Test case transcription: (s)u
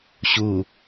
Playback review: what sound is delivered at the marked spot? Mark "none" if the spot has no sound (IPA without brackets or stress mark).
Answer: ɕ